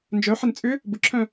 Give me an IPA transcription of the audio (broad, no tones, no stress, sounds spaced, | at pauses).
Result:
n d͡ʒ œ ħ ɪ n t͡sʼ ʏ | b ʊ ǁʰ œ̃